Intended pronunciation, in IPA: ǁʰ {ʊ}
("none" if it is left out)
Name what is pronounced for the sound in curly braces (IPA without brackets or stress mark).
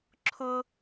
ʊ